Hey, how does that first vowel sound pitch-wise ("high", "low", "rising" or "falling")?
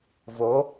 rising